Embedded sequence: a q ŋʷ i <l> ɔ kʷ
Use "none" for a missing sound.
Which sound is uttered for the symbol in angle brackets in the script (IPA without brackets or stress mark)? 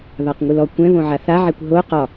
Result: l